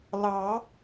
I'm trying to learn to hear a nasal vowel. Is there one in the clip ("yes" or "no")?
no